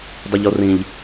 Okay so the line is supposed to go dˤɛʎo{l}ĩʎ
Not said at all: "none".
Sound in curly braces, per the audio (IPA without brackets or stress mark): r